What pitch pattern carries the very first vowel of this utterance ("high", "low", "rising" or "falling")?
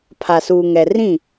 low